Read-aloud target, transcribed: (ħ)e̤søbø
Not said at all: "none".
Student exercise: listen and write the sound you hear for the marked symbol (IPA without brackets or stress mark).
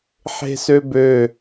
ħ